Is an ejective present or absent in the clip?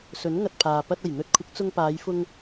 absent